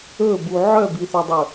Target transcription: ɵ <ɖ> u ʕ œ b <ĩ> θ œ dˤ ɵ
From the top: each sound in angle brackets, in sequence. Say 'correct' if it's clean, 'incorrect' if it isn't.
incorrect, incorrect

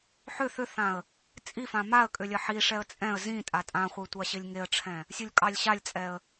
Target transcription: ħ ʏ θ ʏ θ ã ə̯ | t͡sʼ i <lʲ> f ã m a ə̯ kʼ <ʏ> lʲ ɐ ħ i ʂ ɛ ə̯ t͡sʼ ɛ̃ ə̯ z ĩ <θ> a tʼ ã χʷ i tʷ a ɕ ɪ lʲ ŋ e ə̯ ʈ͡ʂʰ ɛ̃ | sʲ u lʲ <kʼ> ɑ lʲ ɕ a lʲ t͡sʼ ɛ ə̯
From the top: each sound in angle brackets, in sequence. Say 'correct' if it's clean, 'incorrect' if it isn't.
incorrect, correct, incorrect, correct

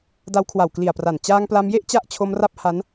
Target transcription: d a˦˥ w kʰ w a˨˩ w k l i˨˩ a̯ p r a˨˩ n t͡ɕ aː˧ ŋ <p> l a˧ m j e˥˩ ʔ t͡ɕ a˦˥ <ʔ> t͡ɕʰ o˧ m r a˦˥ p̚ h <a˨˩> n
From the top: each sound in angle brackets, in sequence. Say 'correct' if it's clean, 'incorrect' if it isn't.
correct, correct, incorrect

